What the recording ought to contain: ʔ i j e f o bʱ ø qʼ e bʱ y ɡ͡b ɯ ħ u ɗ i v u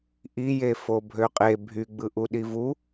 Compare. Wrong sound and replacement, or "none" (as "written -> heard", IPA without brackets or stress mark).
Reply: ħ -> ʔ